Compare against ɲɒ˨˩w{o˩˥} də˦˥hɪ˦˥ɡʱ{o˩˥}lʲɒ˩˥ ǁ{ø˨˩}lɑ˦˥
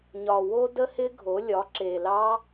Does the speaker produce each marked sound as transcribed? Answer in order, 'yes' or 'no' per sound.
no, yes, no

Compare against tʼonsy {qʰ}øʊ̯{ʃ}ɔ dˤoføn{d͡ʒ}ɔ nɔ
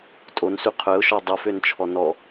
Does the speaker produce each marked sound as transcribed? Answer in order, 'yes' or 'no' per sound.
yes, yes, no

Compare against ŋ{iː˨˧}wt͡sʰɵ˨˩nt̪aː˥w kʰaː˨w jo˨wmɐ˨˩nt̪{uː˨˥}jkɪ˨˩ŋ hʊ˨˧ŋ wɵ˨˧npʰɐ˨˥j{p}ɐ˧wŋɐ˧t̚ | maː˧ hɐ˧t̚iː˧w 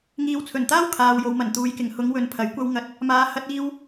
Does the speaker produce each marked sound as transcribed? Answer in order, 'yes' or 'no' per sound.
yes, no, no

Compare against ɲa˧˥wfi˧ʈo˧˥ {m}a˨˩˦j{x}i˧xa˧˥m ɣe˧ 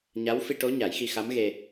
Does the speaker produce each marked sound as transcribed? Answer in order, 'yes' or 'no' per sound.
no, yes

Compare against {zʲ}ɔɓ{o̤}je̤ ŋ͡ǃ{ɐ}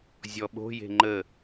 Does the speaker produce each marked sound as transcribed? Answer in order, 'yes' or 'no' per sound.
yes, yes, no

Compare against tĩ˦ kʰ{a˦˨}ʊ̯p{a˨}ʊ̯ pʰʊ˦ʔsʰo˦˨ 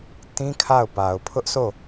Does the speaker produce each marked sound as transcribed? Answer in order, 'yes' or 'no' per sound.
yes, yes

